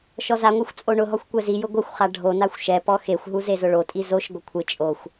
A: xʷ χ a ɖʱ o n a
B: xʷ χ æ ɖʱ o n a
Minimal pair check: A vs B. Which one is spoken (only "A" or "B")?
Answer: A